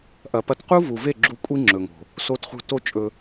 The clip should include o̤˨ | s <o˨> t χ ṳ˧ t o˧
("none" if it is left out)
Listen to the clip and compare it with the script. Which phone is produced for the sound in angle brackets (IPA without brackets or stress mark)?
o˧